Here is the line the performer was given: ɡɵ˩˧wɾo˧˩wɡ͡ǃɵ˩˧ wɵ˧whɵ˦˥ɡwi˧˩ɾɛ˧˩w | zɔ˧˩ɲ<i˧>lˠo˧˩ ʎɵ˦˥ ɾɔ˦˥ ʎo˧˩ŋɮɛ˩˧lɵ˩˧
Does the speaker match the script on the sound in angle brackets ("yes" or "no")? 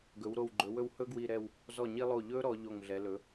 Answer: yes